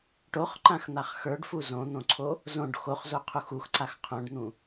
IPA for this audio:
ʈoχǃãxn̪aχ xə˞ɖfu zõn̪õǀʰo | zõɖ xoχzoqʰux uxǀax qʰõɖn̪ũ

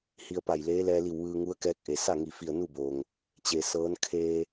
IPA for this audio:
hi˧ə̯pa˧˩jleː˧˥ lɛː˧li˧˩w ʋɯː˧ŋu˧˥ə̯kɛː˧˥k̚ʔe˩ sa˥˨ŋi˧˩ fi˧˩ə̯nu˥˨boː˩ŋ | t͡ɕe˩ sɤː˧˥n kʰeː˧

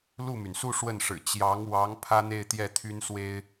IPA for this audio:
lu˥˩my˩nsu˥˧ ʂwə˥˩nʂɻ̩˨˩ t͡ɕjɑ˧˥ŋwɑ˧˥ŋ pʰä˥n̪e˥˧ɪ̯t̪jɛ˥˩ t̪ʰy˥nswe˥ɪ̯

